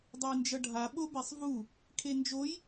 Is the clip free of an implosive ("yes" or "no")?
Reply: no